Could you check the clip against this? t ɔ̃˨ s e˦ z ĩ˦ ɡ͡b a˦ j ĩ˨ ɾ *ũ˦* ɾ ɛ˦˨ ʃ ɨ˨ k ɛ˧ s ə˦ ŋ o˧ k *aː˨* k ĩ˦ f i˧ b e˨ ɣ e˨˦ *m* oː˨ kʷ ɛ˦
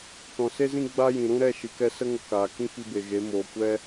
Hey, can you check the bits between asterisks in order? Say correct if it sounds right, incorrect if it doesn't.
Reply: correct, correct, correct

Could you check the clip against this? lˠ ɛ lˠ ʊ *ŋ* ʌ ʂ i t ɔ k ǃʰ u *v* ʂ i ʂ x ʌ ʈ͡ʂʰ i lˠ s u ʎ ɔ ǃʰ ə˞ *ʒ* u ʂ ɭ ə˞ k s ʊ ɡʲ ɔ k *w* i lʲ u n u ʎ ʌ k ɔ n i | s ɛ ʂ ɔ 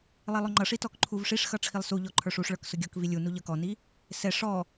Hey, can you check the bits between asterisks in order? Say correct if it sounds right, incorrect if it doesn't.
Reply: incorrect, correct, incorrect, incorrect

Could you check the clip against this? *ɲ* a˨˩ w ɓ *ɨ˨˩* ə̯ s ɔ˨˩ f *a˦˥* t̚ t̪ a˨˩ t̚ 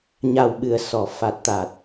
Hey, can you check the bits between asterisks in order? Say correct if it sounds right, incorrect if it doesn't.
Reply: correct, correct, incorrect

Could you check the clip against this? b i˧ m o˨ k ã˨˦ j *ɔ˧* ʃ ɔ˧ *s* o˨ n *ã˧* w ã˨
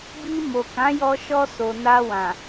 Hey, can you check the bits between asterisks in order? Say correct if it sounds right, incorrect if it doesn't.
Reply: correct, correct, incorrect

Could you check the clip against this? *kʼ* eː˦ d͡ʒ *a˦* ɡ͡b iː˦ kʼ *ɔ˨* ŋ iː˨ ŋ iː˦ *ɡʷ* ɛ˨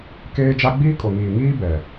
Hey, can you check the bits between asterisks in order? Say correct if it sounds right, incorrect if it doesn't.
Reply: incorrect, correct, incorrect, incorrect

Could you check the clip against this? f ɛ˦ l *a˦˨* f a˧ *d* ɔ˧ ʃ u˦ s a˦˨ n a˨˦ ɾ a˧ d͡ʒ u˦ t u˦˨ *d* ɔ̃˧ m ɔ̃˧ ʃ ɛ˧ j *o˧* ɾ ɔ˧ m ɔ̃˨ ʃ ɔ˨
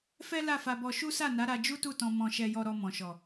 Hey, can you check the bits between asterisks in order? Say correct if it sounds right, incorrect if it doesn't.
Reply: correct, incorrect, incorrect, incorrect

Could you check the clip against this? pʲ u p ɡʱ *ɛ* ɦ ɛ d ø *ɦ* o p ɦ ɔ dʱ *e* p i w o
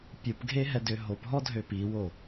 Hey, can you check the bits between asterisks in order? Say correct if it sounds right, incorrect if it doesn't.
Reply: incorrect, correct, incorrect

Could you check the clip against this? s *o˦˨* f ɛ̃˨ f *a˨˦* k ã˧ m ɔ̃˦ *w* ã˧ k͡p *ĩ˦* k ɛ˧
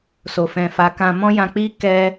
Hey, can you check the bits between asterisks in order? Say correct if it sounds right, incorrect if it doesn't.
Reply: incorrect, correct, incorrect, incorrect

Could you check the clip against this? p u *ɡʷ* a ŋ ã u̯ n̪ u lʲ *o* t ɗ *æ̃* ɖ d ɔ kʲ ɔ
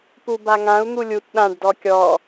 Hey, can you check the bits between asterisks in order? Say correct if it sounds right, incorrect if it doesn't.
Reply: incorrect, incorrect, incorrect

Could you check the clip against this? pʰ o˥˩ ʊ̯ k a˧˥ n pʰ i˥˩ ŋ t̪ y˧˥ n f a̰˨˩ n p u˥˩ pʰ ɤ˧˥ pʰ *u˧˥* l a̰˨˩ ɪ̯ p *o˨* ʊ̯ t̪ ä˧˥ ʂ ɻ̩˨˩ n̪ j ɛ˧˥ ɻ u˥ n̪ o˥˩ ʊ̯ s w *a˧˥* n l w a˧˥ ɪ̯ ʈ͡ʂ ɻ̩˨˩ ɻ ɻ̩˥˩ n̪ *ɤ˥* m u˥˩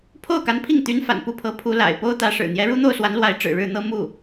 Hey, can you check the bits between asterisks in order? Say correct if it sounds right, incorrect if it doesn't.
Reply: correct, incorrect, correct, correct

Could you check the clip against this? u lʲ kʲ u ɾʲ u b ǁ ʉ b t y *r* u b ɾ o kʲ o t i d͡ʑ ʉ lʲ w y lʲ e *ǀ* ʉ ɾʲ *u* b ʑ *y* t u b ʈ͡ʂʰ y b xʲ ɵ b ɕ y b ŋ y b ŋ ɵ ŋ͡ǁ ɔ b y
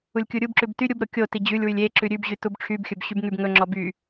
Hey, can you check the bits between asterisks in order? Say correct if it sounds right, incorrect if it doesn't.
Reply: incorrect, incorrect, incorrect, correct

